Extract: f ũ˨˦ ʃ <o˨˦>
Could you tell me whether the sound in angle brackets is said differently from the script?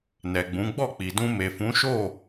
yes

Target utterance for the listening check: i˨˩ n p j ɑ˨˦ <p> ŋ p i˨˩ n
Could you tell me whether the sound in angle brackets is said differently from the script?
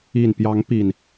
yes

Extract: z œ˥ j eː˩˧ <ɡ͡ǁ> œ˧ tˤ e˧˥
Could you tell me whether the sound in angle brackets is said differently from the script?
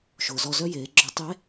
no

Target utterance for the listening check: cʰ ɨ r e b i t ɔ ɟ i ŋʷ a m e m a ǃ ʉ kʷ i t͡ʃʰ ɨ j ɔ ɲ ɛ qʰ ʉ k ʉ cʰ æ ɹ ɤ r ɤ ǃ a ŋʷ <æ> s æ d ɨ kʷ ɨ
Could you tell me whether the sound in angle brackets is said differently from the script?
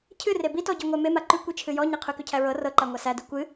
yes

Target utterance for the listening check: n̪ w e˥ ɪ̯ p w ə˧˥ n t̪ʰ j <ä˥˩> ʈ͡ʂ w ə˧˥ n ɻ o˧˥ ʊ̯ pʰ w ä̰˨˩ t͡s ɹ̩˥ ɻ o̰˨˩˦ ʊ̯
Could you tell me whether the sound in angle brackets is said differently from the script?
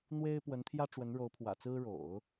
yes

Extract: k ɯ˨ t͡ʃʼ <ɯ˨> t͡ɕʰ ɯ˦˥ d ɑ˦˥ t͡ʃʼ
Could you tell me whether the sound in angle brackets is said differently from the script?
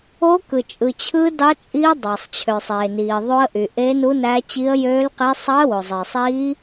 no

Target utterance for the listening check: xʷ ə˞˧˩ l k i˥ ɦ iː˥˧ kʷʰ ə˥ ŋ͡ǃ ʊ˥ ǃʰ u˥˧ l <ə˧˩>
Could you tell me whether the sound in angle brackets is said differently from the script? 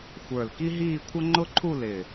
yes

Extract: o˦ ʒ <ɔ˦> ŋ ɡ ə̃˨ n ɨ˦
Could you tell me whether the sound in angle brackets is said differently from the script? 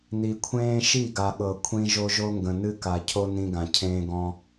yes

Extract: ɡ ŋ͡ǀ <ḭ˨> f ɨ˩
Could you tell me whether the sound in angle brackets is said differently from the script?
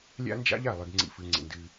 no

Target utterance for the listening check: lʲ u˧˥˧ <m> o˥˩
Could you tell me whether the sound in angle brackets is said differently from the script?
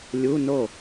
yes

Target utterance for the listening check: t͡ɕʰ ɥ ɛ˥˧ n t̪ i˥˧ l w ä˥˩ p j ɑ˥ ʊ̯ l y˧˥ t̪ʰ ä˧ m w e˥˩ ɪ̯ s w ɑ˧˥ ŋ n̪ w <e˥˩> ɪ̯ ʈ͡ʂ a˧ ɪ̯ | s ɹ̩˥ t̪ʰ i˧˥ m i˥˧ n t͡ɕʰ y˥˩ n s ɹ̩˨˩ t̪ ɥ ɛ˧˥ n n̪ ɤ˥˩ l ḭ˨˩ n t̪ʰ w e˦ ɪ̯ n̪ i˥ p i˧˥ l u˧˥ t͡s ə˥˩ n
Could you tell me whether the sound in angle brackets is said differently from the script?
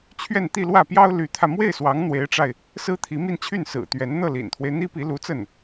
yes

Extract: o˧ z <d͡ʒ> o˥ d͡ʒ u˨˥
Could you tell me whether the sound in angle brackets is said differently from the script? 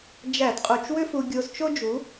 yes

